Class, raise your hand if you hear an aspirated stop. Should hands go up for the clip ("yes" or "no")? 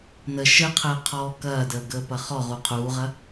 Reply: yes